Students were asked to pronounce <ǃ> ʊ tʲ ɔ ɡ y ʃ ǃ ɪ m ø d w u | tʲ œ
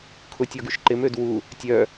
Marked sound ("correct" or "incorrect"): incorrect